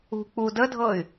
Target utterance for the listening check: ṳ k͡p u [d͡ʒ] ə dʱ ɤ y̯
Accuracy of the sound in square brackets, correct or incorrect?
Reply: incorrect: d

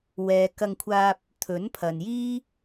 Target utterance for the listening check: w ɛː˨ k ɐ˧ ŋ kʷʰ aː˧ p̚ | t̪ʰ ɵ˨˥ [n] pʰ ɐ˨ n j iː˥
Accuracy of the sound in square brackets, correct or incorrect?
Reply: correct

